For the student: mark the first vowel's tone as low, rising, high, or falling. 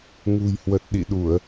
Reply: low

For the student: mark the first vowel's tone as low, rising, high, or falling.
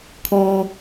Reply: low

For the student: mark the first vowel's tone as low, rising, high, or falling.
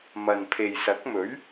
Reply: low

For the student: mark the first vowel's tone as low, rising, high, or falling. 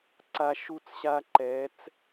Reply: low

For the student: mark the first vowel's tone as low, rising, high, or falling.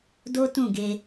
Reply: high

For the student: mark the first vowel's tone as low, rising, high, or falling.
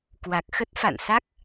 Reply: low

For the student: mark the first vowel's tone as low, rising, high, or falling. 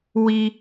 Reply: low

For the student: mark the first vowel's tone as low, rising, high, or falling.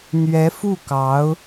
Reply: rising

